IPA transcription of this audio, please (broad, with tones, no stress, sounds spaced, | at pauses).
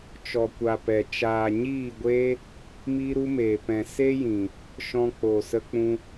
t͡ʃ ɔ˨ kʷ a˨ p ɛ˨ t͡ʃ aː˨ ɲ iː˦˨ ɡʷ eː˦ | m iː˦ ɾ u˦ m eː˨ p ɛ̃˨ s e˦ j ĩ˨ | ʃ ɔ̃˧ k͡p o˨ s ə˧ k͡p ũ˧